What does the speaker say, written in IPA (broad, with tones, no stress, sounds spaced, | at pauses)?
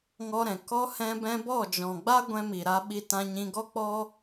ŋ ɔ˧ ɾ ɛ̃˨ k ɔ˧ h ɛ̃˧ b ɛ̃˧ b ɔ˦˨ d͡ʒ ɔ̃˨ ɡ͡b a˦ ɡʷ ɛ̃˧ m i˨ ɾ a˧ ɓ i˧ t ã˧ ɲ ĩ˧ ɡ ɔ˦ k͡p ɔ˦